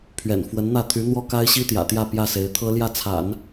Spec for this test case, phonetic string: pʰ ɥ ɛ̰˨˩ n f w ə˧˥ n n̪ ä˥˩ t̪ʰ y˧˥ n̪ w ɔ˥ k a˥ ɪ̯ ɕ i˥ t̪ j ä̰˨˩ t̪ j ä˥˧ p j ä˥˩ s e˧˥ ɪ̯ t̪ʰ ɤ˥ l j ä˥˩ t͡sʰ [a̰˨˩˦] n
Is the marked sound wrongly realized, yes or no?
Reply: no